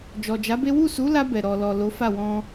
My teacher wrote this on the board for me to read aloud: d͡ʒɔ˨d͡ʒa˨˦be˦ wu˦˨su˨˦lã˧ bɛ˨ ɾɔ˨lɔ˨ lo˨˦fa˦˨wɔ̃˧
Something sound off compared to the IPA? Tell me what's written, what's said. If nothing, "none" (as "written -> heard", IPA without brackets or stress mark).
ã˧ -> a˧